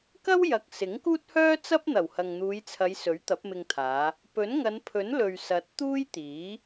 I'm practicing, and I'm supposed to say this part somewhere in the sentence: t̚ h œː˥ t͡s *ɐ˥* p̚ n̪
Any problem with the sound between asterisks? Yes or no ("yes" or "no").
no